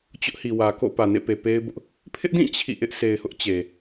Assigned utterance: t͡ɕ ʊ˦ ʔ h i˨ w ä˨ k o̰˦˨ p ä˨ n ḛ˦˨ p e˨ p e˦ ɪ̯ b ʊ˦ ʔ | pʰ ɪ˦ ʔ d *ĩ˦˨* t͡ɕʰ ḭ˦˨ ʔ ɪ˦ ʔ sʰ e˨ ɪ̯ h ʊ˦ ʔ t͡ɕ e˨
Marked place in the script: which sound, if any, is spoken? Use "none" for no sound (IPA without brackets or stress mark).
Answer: ĩ˦˨